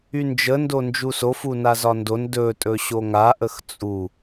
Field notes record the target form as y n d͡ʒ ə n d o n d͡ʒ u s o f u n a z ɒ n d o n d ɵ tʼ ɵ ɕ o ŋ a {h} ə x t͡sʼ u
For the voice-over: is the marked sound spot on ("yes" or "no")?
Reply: no